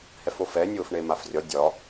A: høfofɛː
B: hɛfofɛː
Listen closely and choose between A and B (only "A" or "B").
B